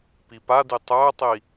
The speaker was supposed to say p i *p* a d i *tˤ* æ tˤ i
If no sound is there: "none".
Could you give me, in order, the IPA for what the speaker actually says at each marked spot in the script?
p, tˤ

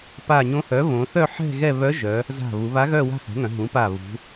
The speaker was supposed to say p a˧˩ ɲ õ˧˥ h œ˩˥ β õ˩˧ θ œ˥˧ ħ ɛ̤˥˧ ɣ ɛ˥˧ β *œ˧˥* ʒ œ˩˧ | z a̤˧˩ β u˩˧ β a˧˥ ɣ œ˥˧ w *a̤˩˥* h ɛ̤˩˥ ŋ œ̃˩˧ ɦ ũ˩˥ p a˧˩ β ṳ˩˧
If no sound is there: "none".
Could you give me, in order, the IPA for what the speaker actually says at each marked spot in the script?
œ˧˥, a̤˥˧

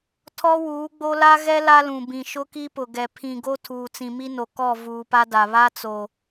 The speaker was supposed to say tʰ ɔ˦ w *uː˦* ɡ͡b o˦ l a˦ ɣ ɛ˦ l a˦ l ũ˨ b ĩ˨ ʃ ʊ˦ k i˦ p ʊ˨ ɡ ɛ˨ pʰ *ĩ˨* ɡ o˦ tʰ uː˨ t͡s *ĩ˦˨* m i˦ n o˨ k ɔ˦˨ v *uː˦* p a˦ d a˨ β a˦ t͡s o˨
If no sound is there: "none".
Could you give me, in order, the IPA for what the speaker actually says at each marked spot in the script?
uː˨˦, ĩ˨, ĩ˨, uː˨

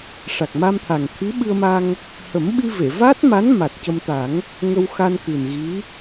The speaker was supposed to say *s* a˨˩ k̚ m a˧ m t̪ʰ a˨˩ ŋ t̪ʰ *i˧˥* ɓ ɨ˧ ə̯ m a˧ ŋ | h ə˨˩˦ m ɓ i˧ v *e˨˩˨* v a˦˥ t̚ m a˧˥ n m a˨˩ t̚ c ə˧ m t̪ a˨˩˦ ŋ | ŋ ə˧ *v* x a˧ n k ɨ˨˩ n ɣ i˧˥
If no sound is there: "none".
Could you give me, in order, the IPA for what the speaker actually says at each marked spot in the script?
ʂ, i˧˥, e˨˩˨, w

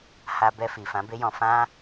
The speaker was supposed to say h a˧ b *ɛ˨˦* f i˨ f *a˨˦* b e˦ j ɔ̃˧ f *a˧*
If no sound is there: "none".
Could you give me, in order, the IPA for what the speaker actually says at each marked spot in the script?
ɛ˧, ã˨˦, ã˧

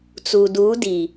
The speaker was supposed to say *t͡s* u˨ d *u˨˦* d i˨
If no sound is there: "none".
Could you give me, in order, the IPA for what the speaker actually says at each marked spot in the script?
t͡s, u˨˦

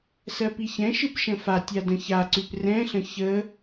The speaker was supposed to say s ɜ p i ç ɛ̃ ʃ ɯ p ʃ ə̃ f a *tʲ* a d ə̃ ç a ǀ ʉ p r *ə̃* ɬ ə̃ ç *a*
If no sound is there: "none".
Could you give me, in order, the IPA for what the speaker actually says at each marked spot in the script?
tʲ, ɛ̃, ə

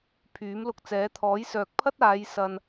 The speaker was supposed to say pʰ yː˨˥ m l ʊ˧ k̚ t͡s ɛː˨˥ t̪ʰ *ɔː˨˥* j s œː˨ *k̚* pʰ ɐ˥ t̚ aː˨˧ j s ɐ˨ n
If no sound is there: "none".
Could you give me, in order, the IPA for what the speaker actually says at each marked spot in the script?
ɔː˨˥, k̚

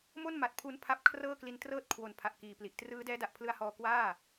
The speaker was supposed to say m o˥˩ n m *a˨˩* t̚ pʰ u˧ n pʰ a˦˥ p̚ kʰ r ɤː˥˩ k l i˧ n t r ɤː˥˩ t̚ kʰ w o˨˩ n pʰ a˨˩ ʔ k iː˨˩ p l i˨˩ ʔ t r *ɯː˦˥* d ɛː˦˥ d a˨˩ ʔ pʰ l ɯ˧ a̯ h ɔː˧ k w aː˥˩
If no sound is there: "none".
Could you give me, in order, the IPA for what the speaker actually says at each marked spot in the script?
a˨˩, ɯː˦˥

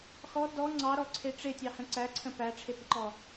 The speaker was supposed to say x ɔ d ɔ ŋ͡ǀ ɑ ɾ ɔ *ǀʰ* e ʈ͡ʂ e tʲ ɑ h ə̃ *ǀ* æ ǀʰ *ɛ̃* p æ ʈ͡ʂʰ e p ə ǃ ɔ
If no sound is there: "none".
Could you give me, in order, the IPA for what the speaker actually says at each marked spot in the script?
ǀʰ, ǀ, ə̃

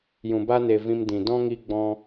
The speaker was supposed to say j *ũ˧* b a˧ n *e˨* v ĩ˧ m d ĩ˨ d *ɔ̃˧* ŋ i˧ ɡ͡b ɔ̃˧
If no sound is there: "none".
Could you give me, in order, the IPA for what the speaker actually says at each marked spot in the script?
ũ˨, e˨, ɔ̃˦

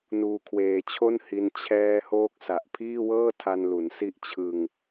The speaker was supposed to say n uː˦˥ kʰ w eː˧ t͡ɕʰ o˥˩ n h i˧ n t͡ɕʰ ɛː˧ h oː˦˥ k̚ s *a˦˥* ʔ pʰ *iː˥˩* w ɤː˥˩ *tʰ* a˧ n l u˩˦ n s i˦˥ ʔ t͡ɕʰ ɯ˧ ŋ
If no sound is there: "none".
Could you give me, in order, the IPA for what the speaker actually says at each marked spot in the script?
a˨˩, iː˥˩, tʰ

